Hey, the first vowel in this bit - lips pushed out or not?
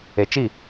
no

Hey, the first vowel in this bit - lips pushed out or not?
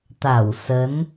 no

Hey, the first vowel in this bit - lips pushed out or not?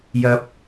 no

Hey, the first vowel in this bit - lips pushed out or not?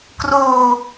yes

